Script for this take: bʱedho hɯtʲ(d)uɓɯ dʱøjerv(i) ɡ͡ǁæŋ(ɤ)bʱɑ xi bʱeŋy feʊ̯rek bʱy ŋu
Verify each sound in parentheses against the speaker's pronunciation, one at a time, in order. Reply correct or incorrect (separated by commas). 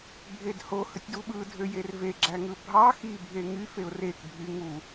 correct, incorrect, incorrect